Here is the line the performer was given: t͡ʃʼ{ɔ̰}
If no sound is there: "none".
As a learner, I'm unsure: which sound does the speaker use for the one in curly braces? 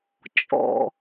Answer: ɔ̰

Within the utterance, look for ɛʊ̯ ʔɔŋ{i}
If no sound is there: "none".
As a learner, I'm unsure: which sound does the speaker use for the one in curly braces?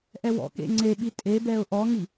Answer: i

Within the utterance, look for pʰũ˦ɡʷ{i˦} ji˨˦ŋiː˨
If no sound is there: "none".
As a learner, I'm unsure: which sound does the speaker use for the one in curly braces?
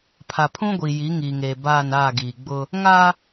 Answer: i˨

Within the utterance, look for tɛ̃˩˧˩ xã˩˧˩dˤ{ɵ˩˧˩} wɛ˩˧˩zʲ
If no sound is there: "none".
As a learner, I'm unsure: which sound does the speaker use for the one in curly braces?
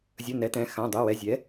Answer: ɵ˩˧˩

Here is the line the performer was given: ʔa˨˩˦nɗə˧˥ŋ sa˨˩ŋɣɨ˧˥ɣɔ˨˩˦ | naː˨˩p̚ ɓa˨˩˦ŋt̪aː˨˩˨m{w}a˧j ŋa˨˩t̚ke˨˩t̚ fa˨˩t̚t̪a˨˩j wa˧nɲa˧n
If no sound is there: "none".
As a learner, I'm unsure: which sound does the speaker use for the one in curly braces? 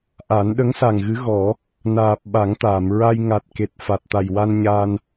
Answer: ɹ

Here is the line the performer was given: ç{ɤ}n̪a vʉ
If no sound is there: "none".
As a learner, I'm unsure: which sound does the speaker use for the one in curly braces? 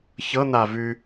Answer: ɤ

